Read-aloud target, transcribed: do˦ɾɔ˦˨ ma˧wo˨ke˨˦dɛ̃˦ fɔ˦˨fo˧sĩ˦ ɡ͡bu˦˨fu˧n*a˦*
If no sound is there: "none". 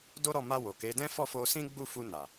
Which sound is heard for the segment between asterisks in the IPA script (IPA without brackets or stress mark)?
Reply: a˨